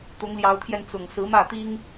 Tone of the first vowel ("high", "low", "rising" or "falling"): rising